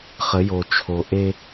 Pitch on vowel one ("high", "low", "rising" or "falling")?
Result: rising